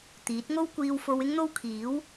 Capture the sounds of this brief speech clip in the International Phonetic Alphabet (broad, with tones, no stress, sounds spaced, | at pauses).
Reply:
t̪ iː˨˥ t̚ ŋ o˥ w kʷ iː˧ w f o˧ w ɪ˥ ŋ n̪ o˥ w kʰ iː˨˥ w